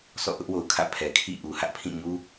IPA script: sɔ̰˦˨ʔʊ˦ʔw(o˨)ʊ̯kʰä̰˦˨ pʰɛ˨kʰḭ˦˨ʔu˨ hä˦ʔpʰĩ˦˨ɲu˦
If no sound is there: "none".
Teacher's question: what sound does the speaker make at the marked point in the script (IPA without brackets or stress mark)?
o˨